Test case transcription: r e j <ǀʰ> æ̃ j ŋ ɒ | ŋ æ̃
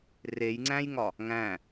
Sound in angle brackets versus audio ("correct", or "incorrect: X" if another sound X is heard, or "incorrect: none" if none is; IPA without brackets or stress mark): incorrect: ŋ͡ǀ